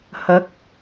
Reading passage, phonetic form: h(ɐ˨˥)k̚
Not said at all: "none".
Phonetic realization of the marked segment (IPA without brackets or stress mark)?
ɐ˨˥